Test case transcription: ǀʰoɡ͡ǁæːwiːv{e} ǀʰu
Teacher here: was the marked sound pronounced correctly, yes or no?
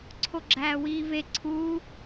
yes